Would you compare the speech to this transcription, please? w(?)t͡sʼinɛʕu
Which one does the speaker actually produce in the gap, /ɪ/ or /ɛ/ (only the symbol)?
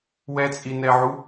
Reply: ɛ